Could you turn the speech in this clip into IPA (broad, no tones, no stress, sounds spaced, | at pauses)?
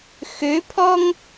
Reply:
x ø pʰ ɔ ŋ